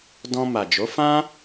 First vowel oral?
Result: no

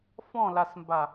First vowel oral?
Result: no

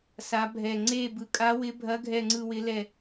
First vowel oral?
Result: yes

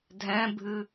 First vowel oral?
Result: no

